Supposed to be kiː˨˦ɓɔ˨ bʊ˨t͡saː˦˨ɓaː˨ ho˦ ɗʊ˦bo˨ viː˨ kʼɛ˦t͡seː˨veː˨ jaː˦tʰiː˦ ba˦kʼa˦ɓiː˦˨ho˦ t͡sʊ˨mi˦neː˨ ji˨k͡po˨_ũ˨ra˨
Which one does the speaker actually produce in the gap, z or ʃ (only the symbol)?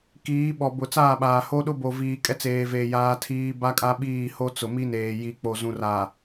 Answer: z